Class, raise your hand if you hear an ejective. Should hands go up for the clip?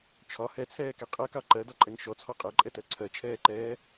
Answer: yes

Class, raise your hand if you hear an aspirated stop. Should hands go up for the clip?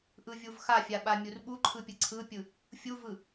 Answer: yes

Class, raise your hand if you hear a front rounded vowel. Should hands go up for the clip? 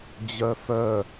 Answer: yes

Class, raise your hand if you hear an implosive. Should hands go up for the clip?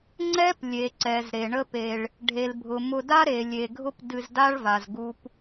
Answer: no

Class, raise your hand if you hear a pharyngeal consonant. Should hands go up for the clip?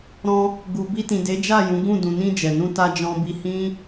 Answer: no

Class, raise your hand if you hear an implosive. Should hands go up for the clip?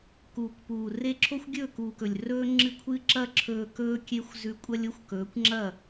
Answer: no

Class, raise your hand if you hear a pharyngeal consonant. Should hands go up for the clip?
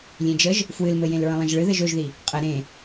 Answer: no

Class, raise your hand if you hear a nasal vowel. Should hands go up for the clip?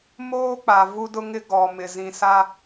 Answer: yes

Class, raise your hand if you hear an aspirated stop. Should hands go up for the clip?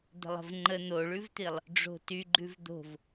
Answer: no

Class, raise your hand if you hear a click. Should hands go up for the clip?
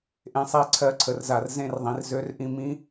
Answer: yes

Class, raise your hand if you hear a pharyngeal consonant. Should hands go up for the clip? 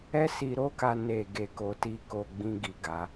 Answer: no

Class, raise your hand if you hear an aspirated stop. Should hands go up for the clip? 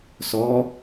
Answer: no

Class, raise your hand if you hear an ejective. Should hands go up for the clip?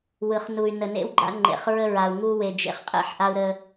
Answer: yes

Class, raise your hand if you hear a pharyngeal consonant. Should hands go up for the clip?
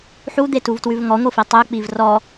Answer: yes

